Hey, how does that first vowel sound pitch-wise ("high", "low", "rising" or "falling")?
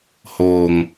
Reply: low